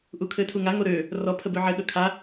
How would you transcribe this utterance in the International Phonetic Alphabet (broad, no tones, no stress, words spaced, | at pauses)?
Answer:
ʔukʰɘtʰuŋa ŋoɾø | rɔ pʰəbøʕɘ ɠɵkʰa